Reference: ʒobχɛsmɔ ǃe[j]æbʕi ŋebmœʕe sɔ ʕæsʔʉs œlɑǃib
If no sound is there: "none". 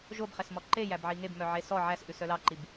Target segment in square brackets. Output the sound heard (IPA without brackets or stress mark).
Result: j